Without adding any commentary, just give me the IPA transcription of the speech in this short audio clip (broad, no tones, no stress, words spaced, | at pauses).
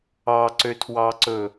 ɑǀøtʰwɑǀɵ